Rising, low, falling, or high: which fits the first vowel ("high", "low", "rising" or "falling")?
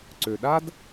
low